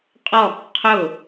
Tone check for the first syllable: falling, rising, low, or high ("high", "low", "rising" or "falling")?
falling